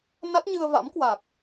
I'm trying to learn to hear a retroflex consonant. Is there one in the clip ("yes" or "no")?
no